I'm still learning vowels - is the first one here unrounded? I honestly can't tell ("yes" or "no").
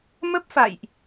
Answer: yes